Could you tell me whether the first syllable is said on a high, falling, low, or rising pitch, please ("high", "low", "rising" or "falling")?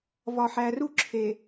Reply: low